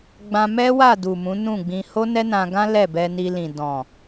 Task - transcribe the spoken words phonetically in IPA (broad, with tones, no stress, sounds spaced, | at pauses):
ɡ͡b ã˧ m ɛ˦ w a˦˨ d u˨ m ũ˨˦ n ũ˦˨ ɡ͡b ĩ˧ h o˦ n ɛ˦ n ã˧ ɡ ã˦ l ɛ˦˨ b ɛ˧ n i˧ l ĩ˨ d ɔ̃˨